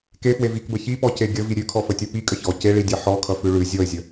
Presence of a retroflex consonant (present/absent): present